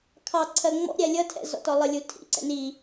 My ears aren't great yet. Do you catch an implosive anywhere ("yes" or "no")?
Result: no